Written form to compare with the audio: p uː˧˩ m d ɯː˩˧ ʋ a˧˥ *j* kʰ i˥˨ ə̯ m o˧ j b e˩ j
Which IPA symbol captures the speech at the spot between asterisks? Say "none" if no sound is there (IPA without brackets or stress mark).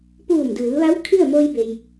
w